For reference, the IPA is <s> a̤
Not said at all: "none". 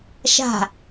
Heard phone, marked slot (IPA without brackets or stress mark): ʃ